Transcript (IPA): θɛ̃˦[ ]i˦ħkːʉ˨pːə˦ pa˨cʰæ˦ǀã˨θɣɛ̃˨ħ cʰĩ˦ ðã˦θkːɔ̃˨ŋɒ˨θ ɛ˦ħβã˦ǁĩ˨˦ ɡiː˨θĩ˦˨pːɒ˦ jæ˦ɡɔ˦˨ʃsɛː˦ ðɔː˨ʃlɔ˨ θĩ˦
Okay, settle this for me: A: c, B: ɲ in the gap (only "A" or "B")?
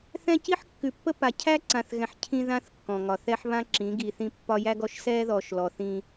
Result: A